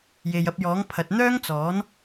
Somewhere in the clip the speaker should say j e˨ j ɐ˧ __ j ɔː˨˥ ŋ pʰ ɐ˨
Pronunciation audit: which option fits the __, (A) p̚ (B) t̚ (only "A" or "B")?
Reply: A